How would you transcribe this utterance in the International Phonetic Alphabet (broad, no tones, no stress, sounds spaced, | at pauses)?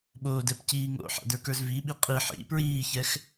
ɓ oː d ɛ p c iː ŋ o̰ ħ a̰ d ə˞ k ə˞ z v i ɓ i qʼ i ħ ḭ p ɹ iː ç ɛ x